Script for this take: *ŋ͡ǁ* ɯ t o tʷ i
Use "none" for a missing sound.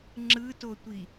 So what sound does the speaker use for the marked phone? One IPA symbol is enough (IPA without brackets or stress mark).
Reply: ŋ͡ǁ